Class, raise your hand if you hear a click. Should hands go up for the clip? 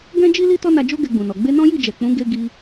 no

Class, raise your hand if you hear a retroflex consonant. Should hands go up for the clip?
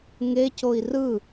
no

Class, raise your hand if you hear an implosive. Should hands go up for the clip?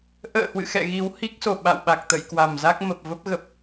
yes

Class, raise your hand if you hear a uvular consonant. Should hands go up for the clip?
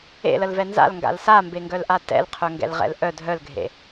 yes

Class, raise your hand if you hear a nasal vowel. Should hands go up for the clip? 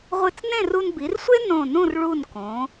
yes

